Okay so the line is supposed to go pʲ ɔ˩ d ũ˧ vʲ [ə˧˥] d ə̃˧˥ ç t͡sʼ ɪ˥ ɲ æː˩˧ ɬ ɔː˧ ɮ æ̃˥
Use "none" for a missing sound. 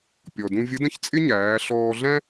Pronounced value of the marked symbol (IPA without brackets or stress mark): ə˧˥